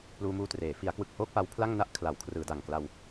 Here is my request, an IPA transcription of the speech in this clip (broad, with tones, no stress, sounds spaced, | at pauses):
p l uː˧ m uː˧ t r eː˩˦ f i˩˦ a̯ k w ɯ˨˩ k̚ h oː˥˩ k̚ p a˦˥ w pʰ l a˥˩ ŋ n a˥˩ ʔ kʰ l a˩˦ w kʰ r ɯː˩˦ d a˨˩ ŋ k l a˧ w